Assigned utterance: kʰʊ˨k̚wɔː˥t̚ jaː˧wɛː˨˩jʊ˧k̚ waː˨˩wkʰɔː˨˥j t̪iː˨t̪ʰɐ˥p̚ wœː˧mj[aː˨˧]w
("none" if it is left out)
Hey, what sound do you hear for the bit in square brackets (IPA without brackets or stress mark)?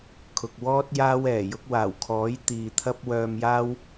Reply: aː˥